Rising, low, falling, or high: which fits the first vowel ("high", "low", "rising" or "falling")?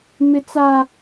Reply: high